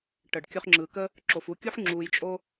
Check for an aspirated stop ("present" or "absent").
absent